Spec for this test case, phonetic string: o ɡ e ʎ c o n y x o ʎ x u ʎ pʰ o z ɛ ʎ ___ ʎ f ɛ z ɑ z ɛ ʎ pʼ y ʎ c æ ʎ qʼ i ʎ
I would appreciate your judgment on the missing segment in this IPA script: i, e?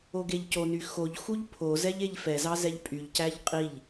e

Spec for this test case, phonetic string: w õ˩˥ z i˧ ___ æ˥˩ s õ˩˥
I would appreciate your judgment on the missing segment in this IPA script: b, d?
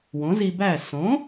b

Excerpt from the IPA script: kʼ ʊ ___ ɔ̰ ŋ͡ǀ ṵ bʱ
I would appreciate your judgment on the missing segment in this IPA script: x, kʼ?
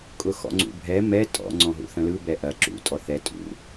x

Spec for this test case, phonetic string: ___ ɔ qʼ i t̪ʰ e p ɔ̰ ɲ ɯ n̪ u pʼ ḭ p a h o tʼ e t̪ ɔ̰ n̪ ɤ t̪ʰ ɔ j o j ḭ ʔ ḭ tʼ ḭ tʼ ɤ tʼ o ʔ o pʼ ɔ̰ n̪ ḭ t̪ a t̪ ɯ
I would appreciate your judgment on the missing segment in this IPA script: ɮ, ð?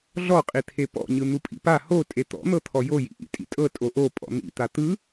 ɮ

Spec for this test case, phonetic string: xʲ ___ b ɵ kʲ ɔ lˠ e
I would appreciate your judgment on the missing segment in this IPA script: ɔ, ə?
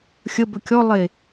ə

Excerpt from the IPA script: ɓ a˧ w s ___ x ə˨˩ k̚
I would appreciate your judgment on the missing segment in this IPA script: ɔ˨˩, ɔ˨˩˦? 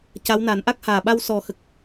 ɔ˨˩˦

